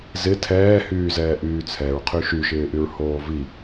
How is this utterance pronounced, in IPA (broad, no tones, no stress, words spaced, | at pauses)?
zɪ tʰɛːhyːzɛːʔyː t͡sʰɛɹqʰy ʃyʃɪːʔyɹhoː vi